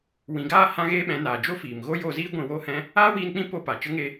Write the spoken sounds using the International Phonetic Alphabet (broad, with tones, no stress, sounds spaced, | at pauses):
w ĩ˨ ɡ aː˦˨ h ã˦ ɣ eː˦ ɓ ɛ̃˨˦ n aː˨ d͡ʒ o˦ f iː˨ m ɣ o˦ j o˧ z iː˦ ɡʷ ĩ˧ w oː˦ h ɛ̃˦ | aː˦ w iː˧ n k͡p ĩ˦ p o˧ p a˨ t͡ʃ ə˦ ŋ e˦